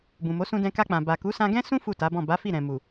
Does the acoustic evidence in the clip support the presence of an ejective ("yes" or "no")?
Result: no